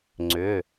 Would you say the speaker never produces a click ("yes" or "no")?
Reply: no